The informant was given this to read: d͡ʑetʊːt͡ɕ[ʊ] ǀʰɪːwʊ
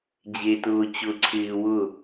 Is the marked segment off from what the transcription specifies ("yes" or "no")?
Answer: no